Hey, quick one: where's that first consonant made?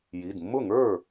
palate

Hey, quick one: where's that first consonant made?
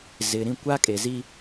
tongue tip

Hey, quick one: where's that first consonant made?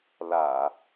tongue tip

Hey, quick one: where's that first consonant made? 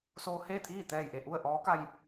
tongue tip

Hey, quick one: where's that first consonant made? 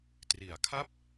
tongue tip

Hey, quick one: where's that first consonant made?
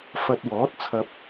lips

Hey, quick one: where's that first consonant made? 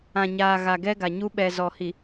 palate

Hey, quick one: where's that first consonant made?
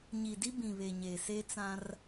palate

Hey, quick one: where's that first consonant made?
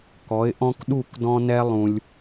velum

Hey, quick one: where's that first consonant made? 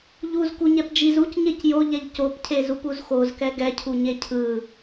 palate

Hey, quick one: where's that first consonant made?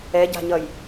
palate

